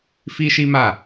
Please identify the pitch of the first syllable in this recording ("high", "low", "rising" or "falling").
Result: high